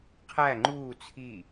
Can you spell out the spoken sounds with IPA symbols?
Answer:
qʰ æ ŋ͡ǃ uː t͡sʰ i

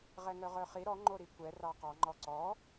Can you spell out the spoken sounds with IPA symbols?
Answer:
ʁ ɛ ŋ œ ʁ œ χ i ɾ ɔ ŋ͡ǃ o ɾ i kʷ ɛ r ɑ q ɑ ŋ͡ǃ ɔ ǀ ɔ

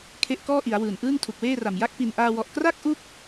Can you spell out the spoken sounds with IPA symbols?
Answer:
kʰ e˦˥ ʔ k ɔː˥˩ ʔ i˩˦ a̯ w ɯː˨˩ n ʔ ɯː˥˩ ŋ tʰ u˨˩ k̚ w eː˥˩ r a˨˩ m j a˥˩ k̚ p i˨˩ n ʔ aː˧ w ɔ˨˩ ʔ k r a˥˩ k̚ ʔ u˦˥ k̚

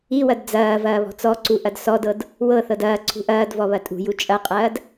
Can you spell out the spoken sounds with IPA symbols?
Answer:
i w ɐ d d͡z ɐː v ɐː β ɔ̤ t͡s ɔ ǀ u ʔ ɐ d s ɔ d ɤ d | w ɤ θ ɤ d ɐː ǀʰ ṳ ʔ ɐː d v ɔ β ɐ tʼ ṳ j u t͡ʃʼ ɐ qʼ ɐː d

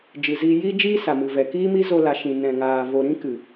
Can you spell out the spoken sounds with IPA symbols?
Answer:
d͡ʒ ɨ˨ z iː˧ j iː˦ d͡ʒ iː˦ s a˨ m ɨ˨ v ɛ˨ k iː˦ m i˦ z o˧ l a˨ ʃ ĩ˨ n ɛ̃˨ ŋ aː˨ v o˨ ɾ ĩ˦ k ɨ˨

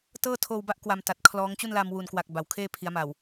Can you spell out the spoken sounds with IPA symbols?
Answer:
t ɤː˥˩ tʰ oː˧ w b a˦˥ ʔ k w a˧ m t a˨˩ t̚ kʰ l ɔː˦˥ ŋ t͡ɕ u˥˩ n l a˧ m w u˨˩ n k w a˨˩ k̚ b a˩˦ w kʰ eː˥˩ pʰ i˩˦ a̯ m a˨˩ w

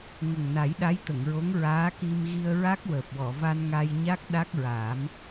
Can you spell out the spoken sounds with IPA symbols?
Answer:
ŋ ə˨˩ ŋ n a˨˩˦ j ɗ a˧˥ j t̪ ə˨˩˨ ŋ ɹ o˧˥ ŋ ɹ aː˧˥ k i˧ m ɣ i˧ ə̯ ɹ a˦˥ k̚ w əː˨˩ p̚ w ɔ˨˩˨ v a˧ n ŋ a˧ j ɲ a˦˥ k̚ ɗ a˦˥ k̚ ɹ aː˨˩˦ m

